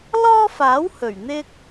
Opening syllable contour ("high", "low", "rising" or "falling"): high